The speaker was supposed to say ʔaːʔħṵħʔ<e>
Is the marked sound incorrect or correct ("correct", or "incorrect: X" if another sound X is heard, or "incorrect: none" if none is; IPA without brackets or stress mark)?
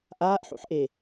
correct